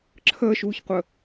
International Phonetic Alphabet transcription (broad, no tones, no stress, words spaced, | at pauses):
ǁʰəːʃuːçqʷə